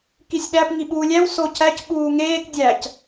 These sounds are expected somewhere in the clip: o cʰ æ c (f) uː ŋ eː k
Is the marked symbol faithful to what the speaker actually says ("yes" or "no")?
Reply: no